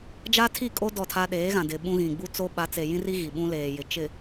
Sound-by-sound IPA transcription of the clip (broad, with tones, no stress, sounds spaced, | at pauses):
d͡ʒ a˦ tʰ i˦˨ kʼ o˦ d ɔ˦˨ tʰ a˦ ɗ eː˨˦ ɣ ã˨ d ɪ˨ ɓ ũ˦ ɣ ĩ˨ ɡ͡b u˦ t͡s o˦ ɓ a˨˦ t͡s e˨ j ĩ˦ r i˦ ɣ i˨ ɓ ũ˦ l eː˨ j ɪ˨ t͡ʃ ɪ˨